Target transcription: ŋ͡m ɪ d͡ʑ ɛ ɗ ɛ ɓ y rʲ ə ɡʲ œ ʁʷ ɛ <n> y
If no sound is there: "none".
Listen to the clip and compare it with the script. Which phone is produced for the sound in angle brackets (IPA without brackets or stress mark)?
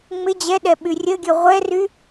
r